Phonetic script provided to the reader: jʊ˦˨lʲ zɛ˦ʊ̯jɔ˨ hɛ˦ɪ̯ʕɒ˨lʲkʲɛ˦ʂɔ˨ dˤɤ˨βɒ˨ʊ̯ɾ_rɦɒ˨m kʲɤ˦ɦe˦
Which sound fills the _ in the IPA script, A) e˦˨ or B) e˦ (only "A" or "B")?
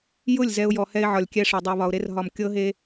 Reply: B